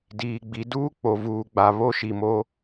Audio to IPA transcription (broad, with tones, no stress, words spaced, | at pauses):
diː˨ɡ͡bi˨˦ duː˦k͡po˨vuː˨ɡ͡ba˨ βo˦ʃi˨mo˦